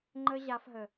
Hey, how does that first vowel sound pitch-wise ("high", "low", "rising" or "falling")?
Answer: high